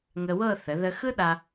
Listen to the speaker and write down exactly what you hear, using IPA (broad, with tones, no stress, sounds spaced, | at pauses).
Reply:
ŋ ə˧ w ɤ˥˧ θ ə˩˧ ð ə˧ x ɯ˥ ɗ a˧